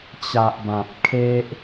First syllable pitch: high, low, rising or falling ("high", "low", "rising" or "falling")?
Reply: low